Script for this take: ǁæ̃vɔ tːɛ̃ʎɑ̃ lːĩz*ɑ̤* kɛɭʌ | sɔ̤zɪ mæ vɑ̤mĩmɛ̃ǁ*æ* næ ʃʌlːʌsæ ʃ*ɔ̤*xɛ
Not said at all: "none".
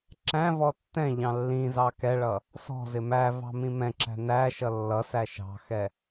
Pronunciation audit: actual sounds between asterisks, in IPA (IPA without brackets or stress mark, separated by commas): ɑ, æ̤, ɑ̤